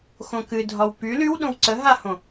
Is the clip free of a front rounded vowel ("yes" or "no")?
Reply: no